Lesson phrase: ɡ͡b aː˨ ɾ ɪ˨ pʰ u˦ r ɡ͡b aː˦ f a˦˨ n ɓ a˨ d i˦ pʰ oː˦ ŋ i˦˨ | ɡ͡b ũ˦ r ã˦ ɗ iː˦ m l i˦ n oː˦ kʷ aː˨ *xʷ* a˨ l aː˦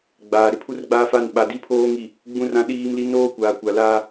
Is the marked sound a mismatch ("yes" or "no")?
yes